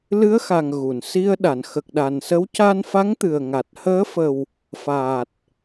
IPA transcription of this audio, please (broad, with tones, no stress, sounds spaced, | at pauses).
l ɨ˧˥ ə̯ x a˨˩ ŋ ɣ u˨˩˨ n s i˧ ə̯ ɗ a˨˩˨ n x ə˨˩ k̚ ɗ a˨˩ n s ə˧˥ w c a˧ n f a˧˥ ŋ t̪ ɨ˨˩ ə̯ ŋ a˨˩ t̚ h əː˧˥ f ə˨˩ w | f aː˨˩ t̚